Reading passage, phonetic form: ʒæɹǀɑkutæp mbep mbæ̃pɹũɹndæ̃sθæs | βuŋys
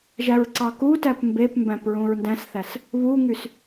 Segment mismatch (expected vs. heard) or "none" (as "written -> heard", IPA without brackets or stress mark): none